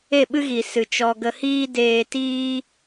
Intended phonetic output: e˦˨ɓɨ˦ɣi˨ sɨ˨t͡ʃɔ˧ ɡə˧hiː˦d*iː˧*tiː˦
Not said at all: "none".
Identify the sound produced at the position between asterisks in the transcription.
eː˧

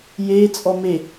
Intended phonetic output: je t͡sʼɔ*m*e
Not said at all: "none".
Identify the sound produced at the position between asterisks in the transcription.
m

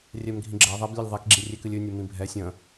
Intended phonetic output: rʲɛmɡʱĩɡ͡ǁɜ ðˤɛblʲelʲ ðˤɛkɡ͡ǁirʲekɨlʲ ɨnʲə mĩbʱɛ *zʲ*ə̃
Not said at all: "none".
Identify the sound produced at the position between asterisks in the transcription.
sʲ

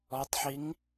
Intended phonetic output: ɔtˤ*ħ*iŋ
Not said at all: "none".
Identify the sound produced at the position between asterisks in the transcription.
ħ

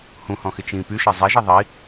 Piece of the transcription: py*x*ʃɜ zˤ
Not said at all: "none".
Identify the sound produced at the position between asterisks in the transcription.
none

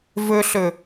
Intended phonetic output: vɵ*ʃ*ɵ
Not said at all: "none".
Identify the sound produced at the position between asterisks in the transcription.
ɬ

